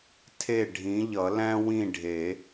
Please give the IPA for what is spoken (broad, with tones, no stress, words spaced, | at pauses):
tʰe˥˨ ɖʱĩ˨˥ʎʌ˨˩˦læ̃˥ wĩ˥˨ɖʱe˨˩˦